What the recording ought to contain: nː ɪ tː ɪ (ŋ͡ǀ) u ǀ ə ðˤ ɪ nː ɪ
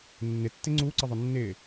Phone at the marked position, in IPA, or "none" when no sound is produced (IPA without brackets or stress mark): ŋ͡ǀ